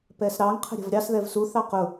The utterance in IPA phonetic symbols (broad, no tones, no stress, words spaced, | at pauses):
pɛsɾɑŋ qʰə̤ɾʲə̤vɾʲɑs ðɛvsu θɑqʊ